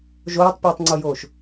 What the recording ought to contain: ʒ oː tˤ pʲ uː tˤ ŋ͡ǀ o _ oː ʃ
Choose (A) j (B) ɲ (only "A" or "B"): A